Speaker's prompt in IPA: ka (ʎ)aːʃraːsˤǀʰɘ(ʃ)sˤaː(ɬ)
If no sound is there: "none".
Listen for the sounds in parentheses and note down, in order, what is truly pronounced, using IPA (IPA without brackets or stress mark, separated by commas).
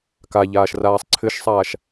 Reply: ʎ, ʃ, ʃ